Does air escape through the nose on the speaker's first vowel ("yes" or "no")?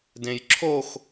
yes